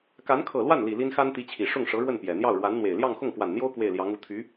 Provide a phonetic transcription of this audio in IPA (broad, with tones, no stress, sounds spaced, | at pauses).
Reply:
k a˧˥ n kʰ ɤ˨˩ l w a˥˩ n l i˨˩ l i˥ n x a˥ n t̪ i˧˥ t͡ɕʰ i˨˩ ʂ ʊ˥˩ ŋ ʂ ɤ˧˥ ɻ w ə˥˩ n p j ɛ˨˩ n̪ j ɑ˥˩ ʊ̯ ɻ w a˧˥ n n̪ w e˨˩ ɪ̯ l j ɑ˥˧ ŋ x ʊ˥˩ ŋ k w a˨˩ n n̪ j o˥ ʊ̯ k w e˥˩ ɪ̯ l j ɑ˧˥ ŋ u˧˥ t̪ʰ y˧˥